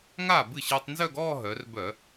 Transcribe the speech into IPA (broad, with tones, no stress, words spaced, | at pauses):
ŋaː˥˩bɨ˥˩ɕɨː˧tˤ nzœ˥˧ɡɔː˥˧ ɦœ˩˧rbœ˧˩˧